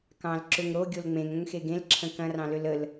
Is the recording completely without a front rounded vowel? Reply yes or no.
no